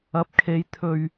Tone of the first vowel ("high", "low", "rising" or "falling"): rising